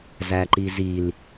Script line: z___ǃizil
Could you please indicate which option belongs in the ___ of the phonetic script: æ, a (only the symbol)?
æ